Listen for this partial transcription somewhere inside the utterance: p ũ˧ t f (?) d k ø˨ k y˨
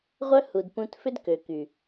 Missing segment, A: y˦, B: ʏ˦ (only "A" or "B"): B